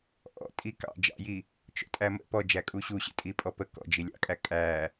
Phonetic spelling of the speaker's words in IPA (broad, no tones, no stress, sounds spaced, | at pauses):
ʔ ɔ̰ tʼ i k ɑ̰ d͡ʒ ɑ̰ j i | t͡ʃ ɔ̰ tʼ æ m ə̰ p ɔ d͡ʒ æ kʼ u ɕ u ɕ ə̰ tʼ i pʼ ɔ p ə k ɔ̰ d͡ʒ i lʲ ɑ̰ kʼ æ kʼ æ